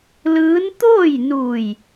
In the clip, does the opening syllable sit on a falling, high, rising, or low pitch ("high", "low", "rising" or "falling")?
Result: rising